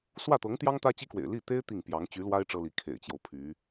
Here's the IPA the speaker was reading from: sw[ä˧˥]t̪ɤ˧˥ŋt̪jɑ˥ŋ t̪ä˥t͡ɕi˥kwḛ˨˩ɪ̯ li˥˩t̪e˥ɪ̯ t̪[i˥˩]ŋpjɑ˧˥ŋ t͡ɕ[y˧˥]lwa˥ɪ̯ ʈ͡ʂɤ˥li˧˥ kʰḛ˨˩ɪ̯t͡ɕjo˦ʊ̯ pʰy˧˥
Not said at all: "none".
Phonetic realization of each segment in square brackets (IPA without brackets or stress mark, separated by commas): ä˥˩, i˥˩, y˧˥